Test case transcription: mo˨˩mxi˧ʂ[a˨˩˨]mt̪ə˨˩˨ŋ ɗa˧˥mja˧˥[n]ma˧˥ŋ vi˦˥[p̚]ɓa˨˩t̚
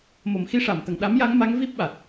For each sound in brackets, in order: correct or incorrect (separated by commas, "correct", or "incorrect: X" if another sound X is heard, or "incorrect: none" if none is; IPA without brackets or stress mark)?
correct, incorrect: ŋ, correct